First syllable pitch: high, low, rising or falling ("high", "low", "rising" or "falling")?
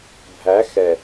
rising